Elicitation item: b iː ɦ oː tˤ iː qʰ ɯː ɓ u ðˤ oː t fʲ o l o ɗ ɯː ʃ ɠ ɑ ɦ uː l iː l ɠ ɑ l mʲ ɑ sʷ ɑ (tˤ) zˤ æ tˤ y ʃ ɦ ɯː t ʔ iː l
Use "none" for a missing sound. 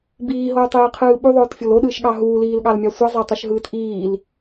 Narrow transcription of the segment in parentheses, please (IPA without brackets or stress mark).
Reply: none